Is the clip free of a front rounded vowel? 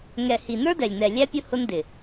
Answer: yes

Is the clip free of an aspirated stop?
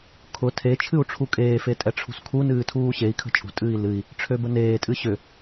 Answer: no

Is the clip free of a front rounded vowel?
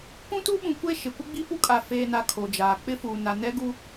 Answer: yes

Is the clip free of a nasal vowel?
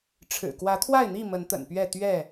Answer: yes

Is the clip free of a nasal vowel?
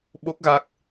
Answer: yes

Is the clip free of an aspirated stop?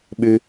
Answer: yes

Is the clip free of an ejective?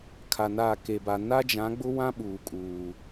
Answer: no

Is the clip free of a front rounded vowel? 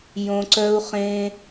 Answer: no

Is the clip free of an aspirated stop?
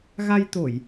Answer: yes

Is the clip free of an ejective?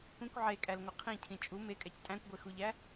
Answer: no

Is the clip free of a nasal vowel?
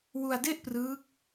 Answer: yes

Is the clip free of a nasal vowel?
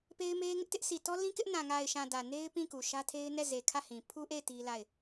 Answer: no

